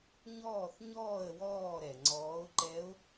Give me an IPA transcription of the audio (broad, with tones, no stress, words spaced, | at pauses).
ɲɔː˥˩θɲɔː˥˩ə̯ wɔː˥˩ɾɛ˩ ŋ͡ǀɔː˩˥ʊ̯ǃɛ˧˥ʊ̯